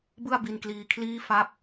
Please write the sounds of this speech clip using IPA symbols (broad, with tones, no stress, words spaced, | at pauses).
bɯ˥˩a̯bi˧nkliː˧kʰliː˥˩ fa˥˩p̚